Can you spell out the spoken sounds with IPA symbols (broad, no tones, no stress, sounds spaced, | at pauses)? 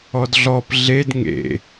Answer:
ɔ d ɮ ɔ p ɮ e d ŋ ḛ